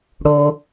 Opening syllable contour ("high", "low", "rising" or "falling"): low